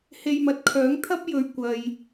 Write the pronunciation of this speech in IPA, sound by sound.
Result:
h e˧ j m ɐ˨ t̚ kʰ œː˨˥ ŋ t̪ʰ ɐ˥ p̚ j ɵ˨ ɥ kʷ ɐ˨ j

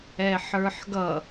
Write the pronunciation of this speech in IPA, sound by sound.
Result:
ɛ ħ ə˞ ħ ɡ ʌ

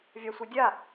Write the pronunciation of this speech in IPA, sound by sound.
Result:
vʲ ɑ sʷ ɯ dʲ a

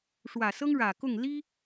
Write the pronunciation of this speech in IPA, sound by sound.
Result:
ʂ w ä˨˩ s ɤ˥ ŋ ɻ ä˨˩ k ʊ˥˩ ŋ l i˥

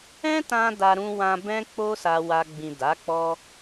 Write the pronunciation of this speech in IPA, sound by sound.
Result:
ɛ̃˦ t ã˧ d a˧ ɾ ũ˧ w ã˧ b ɛ̃˦ k͡p o˦ s a˧ w a˧ ɡ͡b ĩ˨ d a˨˦ k͡p ɔ˦

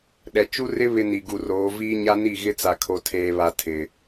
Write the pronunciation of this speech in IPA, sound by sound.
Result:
ɗ ɛ˨ t͡ʃ u˦ r ɪ˦ β ɪ˦ n i˨ ɡ u˨ r oː˨˦ v iː˦ ɲ a˦ n i˦˨ ɣ ɪ˦ t͡s a˨ kʰ o˨ tʰ eː˨ β a˨ tʰ ɪ˨

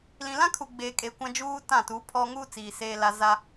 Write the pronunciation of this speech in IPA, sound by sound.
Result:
l ĩ˨ l ã˦ kʰ u˨ ɡ͡b eː˨ kʼ e˨ kʷ ã˦ d͡ʒ uː˦ t ã˦˨ t u˨˦ pʰ ɔ˦ ŋ uː˦ t͡s iː˨ s eː˨ l a˨ z a˦

